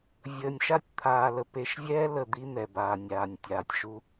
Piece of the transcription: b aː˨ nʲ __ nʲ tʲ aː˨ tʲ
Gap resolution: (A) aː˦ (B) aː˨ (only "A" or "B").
B